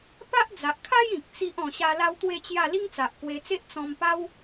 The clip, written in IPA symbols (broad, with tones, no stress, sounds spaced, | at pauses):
p a˦ ʔ d͡z a˨ ʔ kʰ a˦ j ĩ˨ k̚ t͡s i˦ ʔ ɔ̃˧ ɕ a˦ l a˦ w t̪ w e˥˧ t͡ɕ j a˥˧ l i˦ ŋ t͡s a˨ ʔ k w e˧ t͡s e˦ ʔ t͡s ɔ̃˧ m p a˦ w